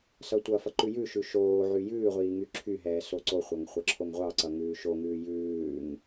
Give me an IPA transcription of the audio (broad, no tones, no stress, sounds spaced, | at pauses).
s ʌ tʷ ʌ f ʌ ǃ ʉ j ʉ ʃ ʉ ʃ oː ʕ y j ʉː ʁʷ iː ŋ y ǁʰ y ɦ ɛː s o ǀ o χʷ ʌ ŋ χʷ ʌ ǁʰ o ŋ ʁʷ ɑ ǀ ʌ ŋ ʉː ʃ o ŋ ʉː j ʉː ŋ